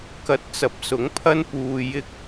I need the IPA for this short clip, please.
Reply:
k ɐ˧ t̚ t͡s ɐ˨˥ p̚ s ʊ˨˥ ŋ pʰ ɐ˥ n p uː˧ j ɪ˥ k̚

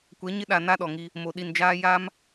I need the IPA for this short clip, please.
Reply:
kʷ ɛ˨˦ ɲ ɪ˦ ɗ a˨ n a˦ ɗ ɔ˨ ŋ i˦ | m o˨ ɗ i˨ n d͡ʒ aː˦ j a˦ m

